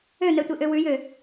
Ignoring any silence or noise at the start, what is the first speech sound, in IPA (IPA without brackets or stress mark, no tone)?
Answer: ø